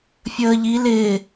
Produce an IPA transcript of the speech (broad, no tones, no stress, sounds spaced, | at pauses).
fʲ əː ʎ i l ɪː